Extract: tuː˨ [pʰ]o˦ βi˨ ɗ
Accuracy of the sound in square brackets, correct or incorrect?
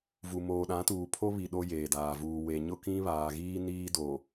correct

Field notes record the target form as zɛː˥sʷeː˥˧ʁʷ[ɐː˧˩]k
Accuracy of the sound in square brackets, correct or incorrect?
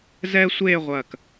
correct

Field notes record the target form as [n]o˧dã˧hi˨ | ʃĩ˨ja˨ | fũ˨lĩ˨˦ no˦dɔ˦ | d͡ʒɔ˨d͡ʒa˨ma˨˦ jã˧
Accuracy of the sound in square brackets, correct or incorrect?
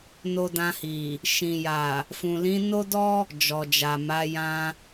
correct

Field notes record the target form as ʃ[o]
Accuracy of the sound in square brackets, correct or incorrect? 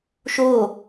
correct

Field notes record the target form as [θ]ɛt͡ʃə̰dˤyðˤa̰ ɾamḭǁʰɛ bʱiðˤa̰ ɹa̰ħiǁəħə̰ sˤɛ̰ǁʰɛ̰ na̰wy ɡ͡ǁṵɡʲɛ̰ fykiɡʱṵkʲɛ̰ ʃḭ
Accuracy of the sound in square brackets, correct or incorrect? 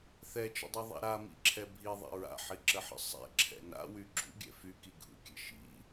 correct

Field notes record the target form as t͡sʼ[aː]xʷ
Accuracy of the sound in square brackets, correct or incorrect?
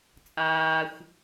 correct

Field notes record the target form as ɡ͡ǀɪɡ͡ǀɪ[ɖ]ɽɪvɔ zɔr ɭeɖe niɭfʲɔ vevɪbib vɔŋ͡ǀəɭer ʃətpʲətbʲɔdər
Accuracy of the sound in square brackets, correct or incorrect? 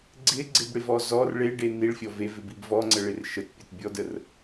incorrect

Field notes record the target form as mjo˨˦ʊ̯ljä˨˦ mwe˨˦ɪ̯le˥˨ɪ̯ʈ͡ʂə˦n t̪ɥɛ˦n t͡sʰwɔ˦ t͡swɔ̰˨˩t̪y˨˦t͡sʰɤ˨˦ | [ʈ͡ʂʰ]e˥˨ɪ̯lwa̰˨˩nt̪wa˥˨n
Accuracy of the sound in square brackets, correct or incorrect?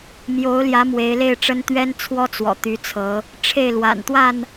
correct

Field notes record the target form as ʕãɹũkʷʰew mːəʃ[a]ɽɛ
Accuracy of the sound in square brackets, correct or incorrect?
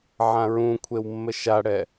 correct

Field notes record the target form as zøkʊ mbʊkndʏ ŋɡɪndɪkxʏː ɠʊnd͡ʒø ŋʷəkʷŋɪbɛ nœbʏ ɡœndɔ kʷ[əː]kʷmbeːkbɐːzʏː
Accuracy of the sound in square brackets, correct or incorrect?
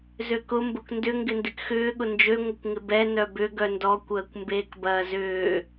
correct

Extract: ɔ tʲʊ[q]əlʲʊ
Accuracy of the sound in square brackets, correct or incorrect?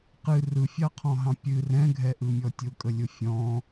incorrect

